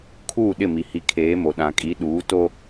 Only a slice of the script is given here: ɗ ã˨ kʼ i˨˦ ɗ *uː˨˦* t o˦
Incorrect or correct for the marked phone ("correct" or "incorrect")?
correct